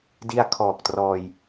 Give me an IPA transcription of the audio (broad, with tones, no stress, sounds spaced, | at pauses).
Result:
d i˧ a̯ kʰ ɔː˨˩ k̚ t r ɔː˧ j